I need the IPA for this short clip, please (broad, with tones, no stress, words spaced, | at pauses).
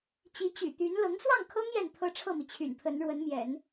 t͡ɕi˧˥t͡ɕy̰˨˩t̪y˧˥n lɤ˧˥ŋswɑ˥˩ŋkʰɤ˥ŋ jɛ˥˩nt̪ʰɤ˥ʈ͡ʂʰɤ˥˩mi˩ t͡ɕʰy̰˨˩npʰə˧˥n ɻwə˧˥nmjɛ̰˨˩˦n